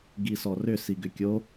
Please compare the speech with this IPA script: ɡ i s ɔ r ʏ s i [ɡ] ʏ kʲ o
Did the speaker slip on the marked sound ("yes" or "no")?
no